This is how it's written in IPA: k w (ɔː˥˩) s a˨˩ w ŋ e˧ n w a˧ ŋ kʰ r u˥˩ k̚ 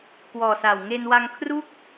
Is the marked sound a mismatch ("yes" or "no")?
yes